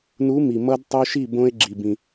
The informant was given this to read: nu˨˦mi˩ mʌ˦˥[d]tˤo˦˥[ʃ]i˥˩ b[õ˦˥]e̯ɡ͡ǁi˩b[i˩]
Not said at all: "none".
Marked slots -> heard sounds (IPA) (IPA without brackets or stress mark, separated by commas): d, ʃ, õ˦˥, ĩ˩